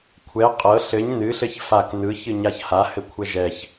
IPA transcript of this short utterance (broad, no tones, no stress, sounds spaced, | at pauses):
kʷʰ ɛ qʼ ɤ ɬ ɘ ɲ n ɨ ɬ ɘ ç f a k n ɯ ç ɨ ɲ a ç h a h ɘ kʷʰ ɛ ʒ ɛ ç